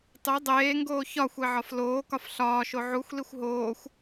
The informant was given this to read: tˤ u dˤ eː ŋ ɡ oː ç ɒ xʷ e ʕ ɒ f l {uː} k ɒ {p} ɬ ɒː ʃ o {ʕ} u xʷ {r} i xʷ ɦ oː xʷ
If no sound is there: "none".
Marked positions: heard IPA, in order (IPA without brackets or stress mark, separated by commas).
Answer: oː, f, ʕ, l